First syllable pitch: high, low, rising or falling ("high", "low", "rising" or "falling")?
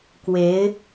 rising